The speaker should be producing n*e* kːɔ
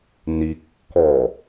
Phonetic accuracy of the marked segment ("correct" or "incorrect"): incorrect